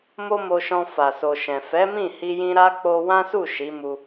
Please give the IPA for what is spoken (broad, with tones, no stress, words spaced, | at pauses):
mo˦mo˧ʃɔ̃˧ fa˨so˨ʃɛ̃˨ fɛ˨˦mĩ˦˨hi˧jĩ˧ ɾa˦k͡po˧wã˦su˦˨ ʃi˨˦mu˧